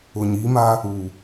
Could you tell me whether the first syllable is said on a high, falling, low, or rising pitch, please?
low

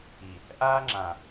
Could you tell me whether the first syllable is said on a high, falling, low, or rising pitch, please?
low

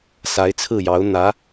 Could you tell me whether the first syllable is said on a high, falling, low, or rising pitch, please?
rising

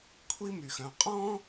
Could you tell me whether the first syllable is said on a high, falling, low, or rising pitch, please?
high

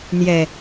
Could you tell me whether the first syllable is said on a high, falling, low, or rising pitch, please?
low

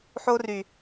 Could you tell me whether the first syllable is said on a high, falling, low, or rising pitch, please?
high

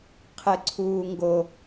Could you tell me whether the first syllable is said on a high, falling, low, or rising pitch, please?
low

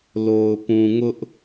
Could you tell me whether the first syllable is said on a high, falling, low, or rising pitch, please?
low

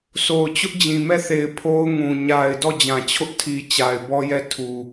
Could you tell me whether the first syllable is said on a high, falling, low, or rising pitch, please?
low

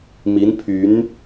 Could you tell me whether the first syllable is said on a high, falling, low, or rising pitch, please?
rising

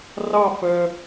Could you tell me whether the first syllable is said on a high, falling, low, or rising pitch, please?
falling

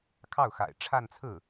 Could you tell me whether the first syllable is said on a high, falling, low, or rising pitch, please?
falling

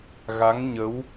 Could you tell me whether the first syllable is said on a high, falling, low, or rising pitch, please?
rising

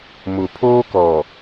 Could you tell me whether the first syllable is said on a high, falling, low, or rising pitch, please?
low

